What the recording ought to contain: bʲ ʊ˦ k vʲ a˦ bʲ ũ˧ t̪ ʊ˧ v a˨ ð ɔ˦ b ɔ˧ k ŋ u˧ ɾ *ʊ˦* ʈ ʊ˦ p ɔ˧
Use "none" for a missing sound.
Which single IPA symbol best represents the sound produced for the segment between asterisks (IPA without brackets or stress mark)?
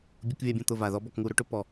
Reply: ʊ˦